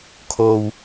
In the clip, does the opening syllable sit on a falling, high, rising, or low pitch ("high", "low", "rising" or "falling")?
low